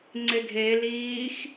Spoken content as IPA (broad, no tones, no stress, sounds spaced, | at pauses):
ŋ͡ǀ e ɡʱ e l iː x